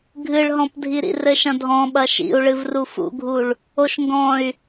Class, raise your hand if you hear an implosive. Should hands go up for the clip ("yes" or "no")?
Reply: yes